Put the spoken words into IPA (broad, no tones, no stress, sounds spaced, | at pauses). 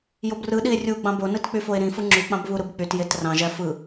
j o b r ɯ ɗ i e̯ rʲ u ɡ͡b ɑ̃ b o n ɯ t k͡p y f o e̯ ɾ ĩ f ɯ ŋ͡ǁ y k͡p ɑ̃ b β u ɾ ɯ b k͡p y t j e t r ɑ̃ ʒ æ f ɯ